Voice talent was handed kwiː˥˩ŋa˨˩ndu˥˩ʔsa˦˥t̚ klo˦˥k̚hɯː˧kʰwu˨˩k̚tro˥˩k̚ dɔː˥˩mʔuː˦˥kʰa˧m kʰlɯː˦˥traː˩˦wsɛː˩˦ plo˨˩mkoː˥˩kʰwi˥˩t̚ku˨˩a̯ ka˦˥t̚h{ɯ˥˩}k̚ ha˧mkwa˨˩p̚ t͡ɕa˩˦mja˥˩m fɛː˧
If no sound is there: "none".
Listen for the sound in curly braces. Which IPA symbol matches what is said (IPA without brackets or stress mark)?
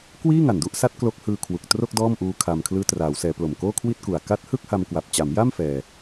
ɯ˥˩